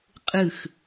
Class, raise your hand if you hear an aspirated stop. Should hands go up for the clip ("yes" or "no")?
no